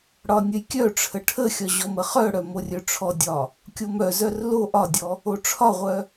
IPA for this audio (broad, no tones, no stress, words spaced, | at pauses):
ɽɒnʲəjkʲœʈ͡ʂʰə ʈʰəxʲɒ ʑɔməχœɽœ morʲœʈ͡ʂʰɔdʲɒ | kʲomœzœr lo ʔɒdʲɔ | oʈ͡ʂʰɒʁʷœ